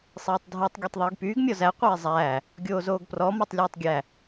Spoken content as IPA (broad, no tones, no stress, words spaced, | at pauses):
sˤeːtˤdʱœtˤ ɡʲɔtˤðˤyːɡpyːɡ mʲɔzæ qʷeːzˤæː | ɡʲoːzoːɡprɔ mɔtˤlʲɵːtˤɡʲæ